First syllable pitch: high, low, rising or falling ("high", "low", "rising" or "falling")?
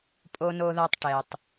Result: high